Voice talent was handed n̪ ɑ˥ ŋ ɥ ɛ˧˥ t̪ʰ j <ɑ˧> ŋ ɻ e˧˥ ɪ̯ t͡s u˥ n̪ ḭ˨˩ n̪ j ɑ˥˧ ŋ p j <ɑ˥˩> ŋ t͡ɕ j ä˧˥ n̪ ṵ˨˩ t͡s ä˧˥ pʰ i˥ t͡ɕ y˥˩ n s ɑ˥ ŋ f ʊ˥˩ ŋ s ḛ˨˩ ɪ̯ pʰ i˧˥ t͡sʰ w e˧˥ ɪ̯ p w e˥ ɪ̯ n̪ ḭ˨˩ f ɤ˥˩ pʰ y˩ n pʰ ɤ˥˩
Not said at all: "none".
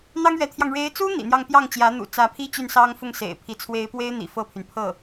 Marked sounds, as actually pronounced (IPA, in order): ɑ˧, ɑ˥˩

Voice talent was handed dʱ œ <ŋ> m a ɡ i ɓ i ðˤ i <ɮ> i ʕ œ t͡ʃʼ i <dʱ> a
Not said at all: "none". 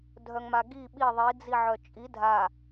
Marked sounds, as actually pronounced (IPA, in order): ŋ, d͡z, dʱ

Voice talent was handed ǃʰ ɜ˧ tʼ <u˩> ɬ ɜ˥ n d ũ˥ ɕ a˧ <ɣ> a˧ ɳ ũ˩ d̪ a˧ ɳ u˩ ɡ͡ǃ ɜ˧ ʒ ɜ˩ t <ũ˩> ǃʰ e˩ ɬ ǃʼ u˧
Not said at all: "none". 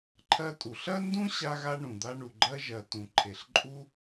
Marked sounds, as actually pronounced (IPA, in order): u˩, ɣ, ũ˩

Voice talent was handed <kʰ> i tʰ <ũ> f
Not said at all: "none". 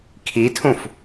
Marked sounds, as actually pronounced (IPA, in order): kʰ, ũ

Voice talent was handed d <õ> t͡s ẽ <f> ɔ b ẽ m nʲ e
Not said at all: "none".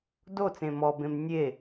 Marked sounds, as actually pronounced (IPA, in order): o, m

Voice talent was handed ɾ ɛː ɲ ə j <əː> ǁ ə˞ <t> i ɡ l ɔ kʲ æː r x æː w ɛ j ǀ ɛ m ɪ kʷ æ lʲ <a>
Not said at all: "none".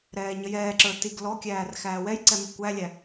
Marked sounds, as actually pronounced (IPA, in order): ɛː, t, æ

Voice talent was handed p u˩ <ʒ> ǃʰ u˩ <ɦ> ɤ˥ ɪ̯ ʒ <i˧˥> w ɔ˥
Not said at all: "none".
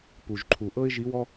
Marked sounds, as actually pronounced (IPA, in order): ʒ, ʔ, i˧˥

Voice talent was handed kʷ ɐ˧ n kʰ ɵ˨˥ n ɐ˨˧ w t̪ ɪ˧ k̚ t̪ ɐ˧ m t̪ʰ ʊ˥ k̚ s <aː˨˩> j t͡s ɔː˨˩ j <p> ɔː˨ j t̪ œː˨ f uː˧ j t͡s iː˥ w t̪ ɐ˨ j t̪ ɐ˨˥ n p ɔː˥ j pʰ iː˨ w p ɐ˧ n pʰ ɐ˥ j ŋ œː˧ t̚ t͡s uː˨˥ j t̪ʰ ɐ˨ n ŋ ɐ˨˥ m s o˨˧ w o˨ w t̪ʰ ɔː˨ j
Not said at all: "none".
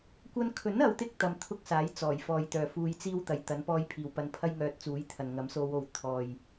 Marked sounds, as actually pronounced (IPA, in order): aː˨˥, f

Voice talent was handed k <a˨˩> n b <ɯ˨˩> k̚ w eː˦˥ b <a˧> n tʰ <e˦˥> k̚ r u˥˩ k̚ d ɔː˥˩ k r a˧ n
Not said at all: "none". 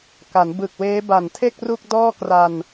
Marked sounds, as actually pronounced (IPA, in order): a˩˦, ɯ˨˩, a˨˩, e˥˩

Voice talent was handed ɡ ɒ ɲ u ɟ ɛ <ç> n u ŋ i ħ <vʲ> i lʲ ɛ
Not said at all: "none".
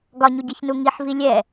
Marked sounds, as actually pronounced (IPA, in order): ç, v

